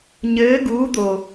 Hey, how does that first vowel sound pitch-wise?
rising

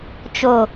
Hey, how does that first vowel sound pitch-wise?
low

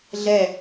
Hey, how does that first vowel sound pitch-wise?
falling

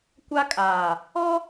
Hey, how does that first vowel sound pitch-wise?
high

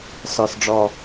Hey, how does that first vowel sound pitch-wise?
low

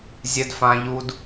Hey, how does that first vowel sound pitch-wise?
high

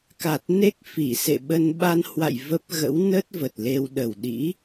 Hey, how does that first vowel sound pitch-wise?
low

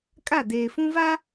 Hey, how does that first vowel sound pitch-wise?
falling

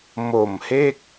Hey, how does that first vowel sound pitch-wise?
low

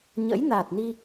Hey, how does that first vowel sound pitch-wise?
rising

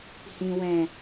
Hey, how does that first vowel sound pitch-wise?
low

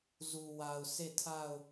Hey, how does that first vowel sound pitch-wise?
low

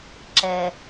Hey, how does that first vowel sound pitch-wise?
low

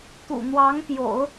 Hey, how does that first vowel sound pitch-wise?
low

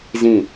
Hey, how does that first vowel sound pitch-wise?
falling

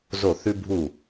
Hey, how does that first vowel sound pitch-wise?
falling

